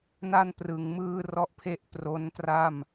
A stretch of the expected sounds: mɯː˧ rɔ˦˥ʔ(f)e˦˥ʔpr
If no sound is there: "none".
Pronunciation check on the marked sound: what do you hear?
pʰ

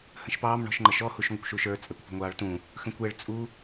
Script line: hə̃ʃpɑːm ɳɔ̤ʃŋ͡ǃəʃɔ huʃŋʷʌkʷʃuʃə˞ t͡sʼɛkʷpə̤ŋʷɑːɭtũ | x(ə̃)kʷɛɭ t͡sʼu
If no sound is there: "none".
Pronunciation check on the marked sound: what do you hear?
ə̃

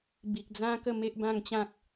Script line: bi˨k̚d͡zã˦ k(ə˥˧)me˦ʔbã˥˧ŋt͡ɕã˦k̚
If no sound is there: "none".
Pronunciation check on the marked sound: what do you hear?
ə˥˧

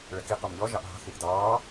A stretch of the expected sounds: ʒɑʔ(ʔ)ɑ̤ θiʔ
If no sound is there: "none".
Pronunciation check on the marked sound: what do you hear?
ɦ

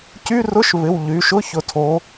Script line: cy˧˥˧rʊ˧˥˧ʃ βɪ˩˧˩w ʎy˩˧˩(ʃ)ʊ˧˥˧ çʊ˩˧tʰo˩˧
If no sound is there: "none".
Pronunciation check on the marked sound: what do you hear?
ʃ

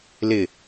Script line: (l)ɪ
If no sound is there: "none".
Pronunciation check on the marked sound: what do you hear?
l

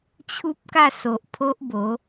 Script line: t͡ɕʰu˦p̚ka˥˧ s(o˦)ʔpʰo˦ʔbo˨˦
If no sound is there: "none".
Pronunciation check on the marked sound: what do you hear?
o˨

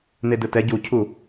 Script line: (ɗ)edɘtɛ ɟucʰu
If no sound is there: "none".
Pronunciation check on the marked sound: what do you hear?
n̪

